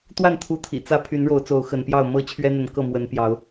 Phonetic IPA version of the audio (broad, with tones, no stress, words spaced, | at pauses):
t̪wa˥˨nt̪ʰu˨˦t̪ʰḭ˨˩ t͡sä˥˨ pʰy˨˦nɻo˨˦ʊ̯t͡so˨˦ʊ̯ xə˨˦npjɑ˥˨ʊ̯ mɤ˥˨ t͡ɕʰɥɛ˦n̪ə˨˦nkɤ˥˨ mwə˨˦npjɑ˨˦ʊ̯